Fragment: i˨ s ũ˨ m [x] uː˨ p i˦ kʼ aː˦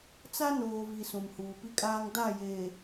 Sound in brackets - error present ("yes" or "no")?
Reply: yes